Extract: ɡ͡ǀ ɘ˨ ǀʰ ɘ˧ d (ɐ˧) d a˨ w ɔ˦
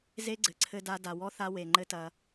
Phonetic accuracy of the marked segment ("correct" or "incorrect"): incorrect